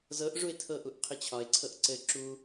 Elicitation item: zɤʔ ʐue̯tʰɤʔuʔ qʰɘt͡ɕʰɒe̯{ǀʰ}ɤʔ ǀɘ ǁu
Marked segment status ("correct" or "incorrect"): correct